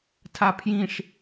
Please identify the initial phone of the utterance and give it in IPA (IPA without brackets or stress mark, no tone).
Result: tʰ